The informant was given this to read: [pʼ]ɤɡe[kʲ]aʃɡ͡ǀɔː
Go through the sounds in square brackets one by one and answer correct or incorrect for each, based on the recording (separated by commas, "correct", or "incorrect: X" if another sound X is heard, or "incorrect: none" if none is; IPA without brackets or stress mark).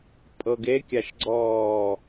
correct, correct